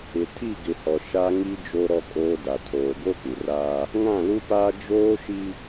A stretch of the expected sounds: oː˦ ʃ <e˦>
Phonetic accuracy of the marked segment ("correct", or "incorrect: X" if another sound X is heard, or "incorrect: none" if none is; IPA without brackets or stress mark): incorrect: i˦